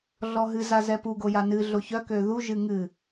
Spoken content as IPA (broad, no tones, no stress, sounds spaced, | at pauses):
ɮ ɔ ɦ ɨ z a z ɛ p u ɡ o j a n ɨ ɮ o ç œ k ø ð u ʒ ɨ ŋ ɨ